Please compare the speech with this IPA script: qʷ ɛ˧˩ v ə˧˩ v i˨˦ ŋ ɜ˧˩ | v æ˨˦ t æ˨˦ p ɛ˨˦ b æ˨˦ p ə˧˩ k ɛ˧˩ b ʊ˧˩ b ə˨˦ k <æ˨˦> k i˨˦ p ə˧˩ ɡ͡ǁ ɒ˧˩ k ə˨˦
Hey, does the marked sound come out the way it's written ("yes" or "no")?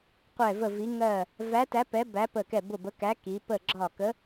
yes